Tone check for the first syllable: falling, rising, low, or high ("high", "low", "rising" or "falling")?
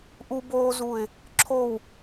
high